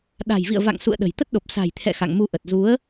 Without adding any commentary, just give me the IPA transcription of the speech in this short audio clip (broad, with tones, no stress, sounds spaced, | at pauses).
ɗ a̤˨˩ j v ḭ˧˨ ə̯ v a̰˧˨ ŋ s ṵ˧˨ ə̯ ɗ ə̤˨˩ j t̪ ə˦˥ t̚ ɗ o˨˩ p̚ s a̤˨˩ j t̪ʰ ɛ̰˧˨ x a̰˧˨ ŋ m u˧ ʔ ə˨˩ t̚ z u˨˦ ə̯